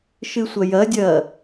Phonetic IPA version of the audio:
ʃ ɨ sʷ ɐ j ɐ dʲ ɐː

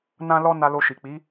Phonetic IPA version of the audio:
n ã˦ l ɔ˦ n a˧ l o˧ ʃ i˨ k͡p i˨˦

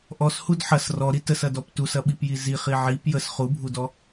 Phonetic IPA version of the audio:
ʔ ɔ s h u d ħ ɐ s r ɔ ɾ i t ə s ɐ d ɔ p t u s ɐ ɓ i p j i z i χ i ʕ i p j ə s χ u bʱ u d ɔ

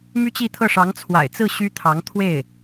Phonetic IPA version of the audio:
m y˥ t͡ɕ i˥˧ t̪ʰ ɤ˥˩ ʂ ɑ˧˥ ŋ t͡sʰ w a̰˨˩ ɪ̯ t͡s ɹ̩˥˩ ɕ y˥ t̪ʰ ɑ˧˥ ŋ t̪ʰ w e˥˩ ɪ̯

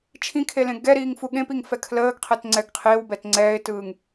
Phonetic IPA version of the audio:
t͡ʃʰ ĩ kʰ e l ẽ ɡ ɛ ɾ iː ŋ f u ɠ ẽ p i ŋ f ɛ kʰ l əː ɡ qʰ ɛ t ŋ͡ǀ ɛ ɡ qʰ ɪː w b ɛ t ŋ͡ǀ ɛː ɪ̯ t ɯː ŋ

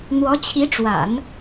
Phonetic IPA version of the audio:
n̪ w ɔ˧˥ t͡ɕʰ i˧˥ ʈ͡ʂ w a̰˨˩˦ n

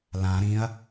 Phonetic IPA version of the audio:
l ã ɾ ĩ ɐ̯

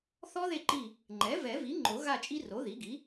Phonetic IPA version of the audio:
θ ɔ˦˥ ð e˦˨ ǃ i˦˨ | ŋ͡ǃ ɛ˩˥ v ɛ˨˩˦ v i˩˥ ŋ͡ǃ o˨˩˦ ɣ a˦˨ t͡ʃʼ i˦˥ r o˩˥ ð i˩˥ ɡ i˩˥

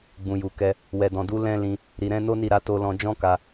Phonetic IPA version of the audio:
ɡ͡b ũ˨ j u˨ k ɛ˧ | w ɛ˨ d ɔ̃˨ d u˨˦ l ɛ̃˦ l ĩ˧ | ɾ i˨ ɾ ɛ̃˨˦ n o˦ n i˦˨ ɾ a˨˦ t o˧ l ɔ̃˧ d͡ʒ ɔ̃˦ k a˧

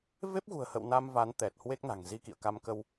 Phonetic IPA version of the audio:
v e˦˥ p̚ ɣ ṳ˨˩ ə̯ h ə̰˧˨ w n a˧ m v a˨˦ n t̪ ɛ˨˩ t̚ h w e˦˥ k̚ n a̤˨˩ ŋ z i˧ k ḭ˧˨ ə̯ k a˧ m k ə˧ w

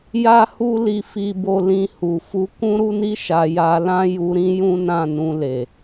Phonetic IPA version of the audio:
j a˦ h u˦ l i˧ f i˦ b o˦ l ĩ˧ h u˨ f u˨˦ k ũ˦ ɾ u˦ n i˦ ʃ a˧ j a˧ l ã˦ j u˧ ɾ ĩ˦ j ũ˦ n ã˦˨ n ũ˧ l e˨

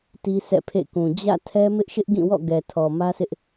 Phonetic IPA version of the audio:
t i˦ sʰ ɛ̰˦˨ pʰ ḛ˦˨ k ũ˨ d͡ʑ ä̰˦˨ tʰ ɛ˦ m ɪ˦ ʔ ʃ ɪ˦ ʔ ɡ ĩ˦˨ w ɔ̰˦˨ ɡ ɛ˨ tʰ ɔ˨ m ä˦ s ɪ˦ ʔ

